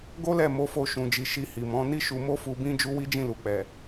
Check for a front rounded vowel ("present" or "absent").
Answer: absent